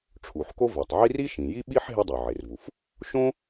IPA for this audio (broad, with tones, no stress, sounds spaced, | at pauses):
ʈ͡ʂʰ u˩ ħ k o˥ v ɛ˩ tˤ ʕ i˥ r i˥ ʃ ĩ˩ j i˥ ɓ i˥ ħ ɦ e˥ dˤ o˩ ʕ e˩ r v u˩ f | ʃ õ˥